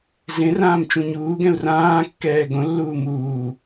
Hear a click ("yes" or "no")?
no